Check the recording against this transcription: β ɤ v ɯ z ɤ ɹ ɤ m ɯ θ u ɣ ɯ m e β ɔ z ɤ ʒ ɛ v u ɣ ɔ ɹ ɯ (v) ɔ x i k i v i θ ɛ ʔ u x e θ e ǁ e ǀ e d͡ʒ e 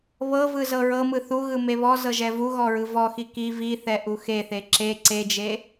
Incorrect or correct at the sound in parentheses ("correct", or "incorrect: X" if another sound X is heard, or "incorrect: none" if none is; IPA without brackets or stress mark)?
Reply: correct